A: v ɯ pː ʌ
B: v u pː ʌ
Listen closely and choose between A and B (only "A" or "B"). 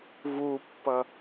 B